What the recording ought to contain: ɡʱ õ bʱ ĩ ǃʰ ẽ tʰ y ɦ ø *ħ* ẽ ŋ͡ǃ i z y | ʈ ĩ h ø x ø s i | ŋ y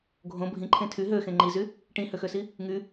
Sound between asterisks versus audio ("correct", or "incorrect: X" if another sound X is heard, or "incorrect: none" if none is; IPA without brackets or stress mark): incorrect: x